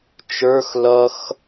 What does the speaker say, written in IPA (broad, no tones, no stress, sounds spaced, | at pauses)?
t͡ʃ ə˞ x l ʌ x